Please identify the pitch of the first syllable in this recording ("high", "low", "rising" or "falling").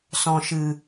low